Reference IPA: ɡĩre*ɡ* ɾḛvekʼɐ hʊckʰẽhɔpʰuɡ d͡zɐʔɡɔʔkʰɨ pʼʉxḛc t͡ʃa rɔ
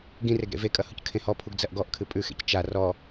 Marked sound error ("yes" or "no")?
no